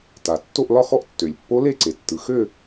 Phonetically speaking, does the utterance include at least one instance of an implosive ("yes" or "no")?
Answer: no